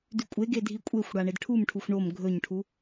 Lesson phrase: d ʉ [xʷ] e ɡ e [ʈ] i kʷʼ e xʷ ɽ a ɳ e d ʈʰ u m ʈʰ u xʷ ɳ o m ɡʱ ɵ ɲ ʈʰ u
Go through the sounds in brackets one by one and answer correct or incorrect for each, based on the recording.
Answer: incorrect: kʷʼ, incorrect: dʱ

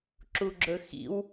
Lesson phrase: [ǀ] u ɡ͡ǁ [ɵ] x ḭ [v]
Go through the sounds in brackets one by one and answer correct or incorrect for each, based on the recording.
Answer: incorrect: ǁ, correct, incorrect: w

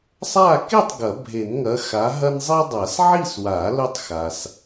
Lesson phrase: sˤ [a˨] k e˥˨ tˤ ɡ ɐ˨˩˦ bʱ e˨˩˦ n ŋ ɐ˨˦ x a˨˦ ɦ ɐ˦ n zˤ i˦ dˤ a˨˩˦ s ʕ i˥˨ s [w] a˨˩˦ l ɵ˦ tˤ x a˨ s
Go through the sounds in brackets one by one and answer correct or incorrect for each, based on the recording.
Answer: incorrect: a˥˨, correct

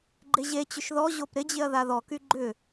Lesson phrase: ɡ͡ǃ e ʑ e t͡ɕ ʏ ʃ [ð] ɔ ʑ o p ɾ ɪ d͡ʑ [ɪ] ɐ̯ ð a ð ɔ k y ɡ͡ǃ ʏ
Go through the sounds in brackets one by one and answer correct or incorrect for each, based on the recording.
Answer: correct, correct

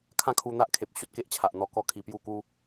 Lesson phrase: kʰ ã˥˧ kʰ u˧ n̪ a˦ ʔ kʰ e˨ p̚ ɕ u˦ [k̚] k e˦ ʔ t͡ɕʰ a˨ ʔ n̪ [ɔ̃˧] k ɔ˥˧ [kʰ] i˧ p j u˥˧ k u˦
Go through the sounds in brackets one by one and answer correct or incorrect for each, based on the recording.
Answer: incorrect: t̚, incorrect: ɔ˧, correct

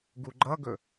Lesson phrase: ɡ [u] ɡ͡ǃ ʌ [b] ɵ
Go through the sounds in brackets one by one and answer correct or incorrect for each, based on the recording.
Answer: correct, incorrect: ɡ

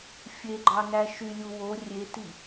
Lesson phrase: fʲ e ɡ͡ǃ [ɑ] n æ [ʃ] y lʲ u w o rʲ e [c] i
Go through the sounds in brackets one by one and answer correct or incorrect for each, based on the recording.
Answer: correct, correct, incorrect: t

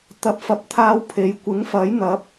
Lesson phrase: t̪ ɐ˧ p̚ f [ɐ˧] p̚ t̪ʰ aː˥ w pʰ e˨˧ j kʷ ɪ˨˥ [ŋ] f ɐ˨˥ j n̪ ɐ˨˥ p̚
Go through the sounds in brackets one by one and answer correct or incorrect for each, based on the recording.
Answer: correct, correct

